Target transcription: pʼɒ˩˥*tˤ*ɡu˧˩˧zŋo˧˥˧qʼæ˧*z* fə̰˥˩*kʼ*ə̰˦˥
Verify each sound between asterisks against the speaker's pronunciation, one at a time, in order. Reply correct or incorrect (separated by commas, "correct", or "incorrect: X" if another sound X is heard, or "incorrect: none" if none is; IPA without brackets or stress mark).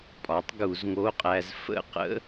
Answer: correct, correct, incorrect: q